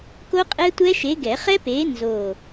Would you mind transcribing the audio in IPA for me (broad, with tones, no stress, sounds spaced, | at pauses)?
k o˦˥ qʼ ɛ˦˥ tʷ ɛ˦˥ ʃ e˨˥ ɡ ɛ˨˩˦ χ ɛ˦˥ p eː˨˥ n z oː˦˨